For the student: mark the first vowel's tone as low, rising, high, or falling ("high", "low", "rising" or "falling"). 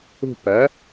falling